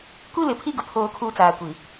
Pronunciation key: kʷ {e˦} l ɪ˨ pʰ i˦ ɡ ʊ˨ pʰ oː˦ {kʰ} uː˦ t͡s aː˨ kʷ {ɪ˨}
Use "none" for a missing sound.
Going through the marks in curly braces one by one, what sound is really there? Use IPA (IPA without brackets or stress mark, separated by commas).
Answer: i˦, kʰ, i˨